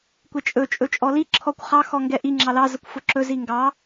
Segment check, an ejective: present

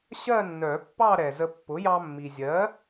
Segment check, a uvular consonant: absent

